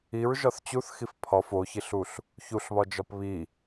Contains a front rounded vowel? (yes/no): no